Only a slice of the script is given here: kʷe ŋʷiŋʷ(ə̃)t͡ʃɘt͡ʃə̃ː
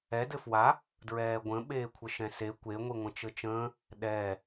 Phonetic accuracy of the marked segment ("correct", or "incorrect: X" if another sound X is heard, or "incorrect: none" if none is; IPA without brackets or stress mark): correct